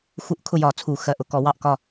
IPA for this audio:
xu˧˩˧ʔ kʰʊ˥˨jɒ˧˩˧ t͡sʰu˧˩˧ xɜ˩˧˩ʔʊ˩˧˩kɔ˧˩˧ wɑ˥˨ʔkɒ˥˨

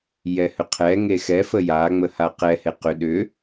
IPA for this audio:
jɛhʏqʰɛŋe xɛfə jaŋ͡mə haqɛhe qʏ ɗʏ

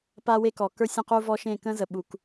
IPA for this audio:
pa˦we˦kɔ˨ kə˞˦sʲə̃˦˨qu˦ vɔ˦ ʃẽ˦˨kə̃˦zə˨ɓu˨k

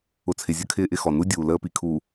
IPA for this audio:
ʊ˨t͡sʰɪ˨zʲə˦ kʰɪː˦ʔɪ˦xɔ˨ nu˦dʲuː˨ ləː˦pi˨ kʰu˨

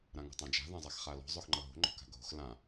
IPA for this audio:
ɾãŋo̤tˤãd͡ʒa̤ ðãzˤaxχalɔ̤ zˤoxŋ͡ǃʌɦo̤ ŋ͡ǃɔ̤ka̤ɡʱo̤x lã

